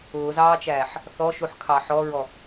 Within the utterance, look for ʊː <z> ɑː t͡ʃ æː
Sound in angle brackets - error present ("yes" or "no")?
no